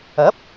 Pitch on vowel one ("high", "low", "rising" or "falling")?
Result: rising